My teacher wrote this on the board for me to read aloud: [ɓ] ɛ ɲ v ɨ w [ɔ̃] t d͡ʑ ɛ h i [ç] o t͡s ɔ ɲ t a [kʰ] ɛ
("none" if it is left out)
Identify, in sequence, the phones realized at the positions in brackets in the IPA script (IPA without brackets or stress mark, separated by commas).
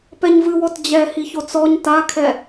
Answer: p, ɔ, ç, kʰ